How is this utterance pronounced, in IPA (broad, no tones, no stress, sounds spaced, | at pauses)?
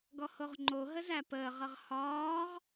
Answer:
ɡ ɔ h o ʁ ŋ͡ǃ o ɦ ə z æ p əː ʁ ʌ ʁ h ɒː ʁ